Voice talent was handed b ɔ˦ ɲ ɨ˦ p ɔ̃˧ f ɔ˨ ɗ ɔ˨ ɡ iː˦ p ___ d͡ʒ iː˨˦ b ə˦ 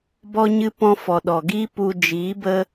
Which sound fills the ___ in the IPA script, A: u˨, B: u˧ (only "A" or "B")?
B